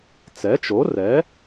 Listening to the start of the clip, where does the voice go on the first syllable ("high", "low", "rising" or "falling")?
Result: rising